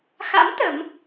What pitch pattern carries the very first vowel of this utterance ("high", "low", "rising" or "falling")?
rising